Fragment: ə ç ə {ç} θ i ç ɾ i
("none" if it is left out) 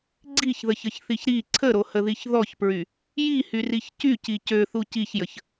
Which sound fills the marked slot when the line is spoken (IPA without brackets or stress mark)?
ç